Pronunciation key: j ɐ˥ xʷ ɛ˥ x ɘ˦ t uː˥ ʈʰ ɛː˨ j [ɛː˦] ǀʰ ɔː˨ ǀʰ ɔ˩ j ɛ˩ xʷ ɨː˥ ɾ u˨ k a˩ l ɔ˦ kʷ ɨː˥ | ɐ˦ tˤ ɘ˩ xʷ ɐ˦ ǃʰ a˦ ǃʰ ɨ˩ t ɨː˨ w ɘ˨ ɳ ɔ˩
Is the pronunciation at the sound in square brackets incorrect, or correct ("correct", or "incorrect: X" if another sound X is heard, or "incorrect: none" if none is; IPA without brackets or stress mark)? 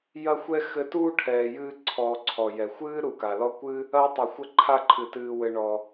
incorrect: ɨː˦